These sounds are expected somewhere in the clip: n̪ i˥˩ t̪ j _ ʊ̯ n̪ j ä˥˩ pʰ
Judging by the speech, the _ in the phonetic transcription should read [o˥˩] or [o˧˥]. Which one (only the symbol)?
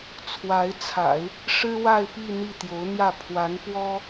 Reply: o˧˥